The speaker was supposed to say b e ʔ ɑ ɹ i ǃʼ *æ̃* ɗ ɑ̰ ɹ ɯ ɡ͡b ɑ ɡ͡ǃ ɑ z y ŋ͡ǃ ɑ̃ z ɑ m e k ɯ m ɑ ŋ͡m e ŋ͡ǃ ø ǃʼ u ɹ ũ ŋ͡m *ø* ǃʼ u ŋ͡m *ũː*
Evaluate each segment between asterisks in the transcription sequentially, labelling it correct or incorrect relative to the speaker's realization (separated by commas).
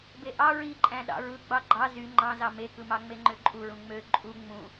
correct, correct, incorrect